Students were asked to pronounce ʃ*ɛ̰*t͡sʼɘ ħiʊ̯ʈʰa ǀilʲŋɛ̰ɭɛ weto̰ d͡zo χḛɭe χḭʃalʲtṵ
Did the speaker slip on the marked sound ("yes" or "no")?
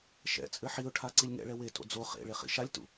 no